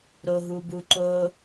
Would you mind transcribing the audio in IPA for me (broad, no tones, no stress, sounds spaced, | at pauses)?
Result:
ɾ o ɦ u b u ǃ o